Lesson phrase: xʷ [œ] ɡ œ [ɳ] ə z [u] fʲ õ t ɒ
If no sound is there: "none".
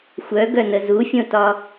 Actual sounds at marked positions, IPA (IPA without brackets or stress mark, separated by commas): œ, n, u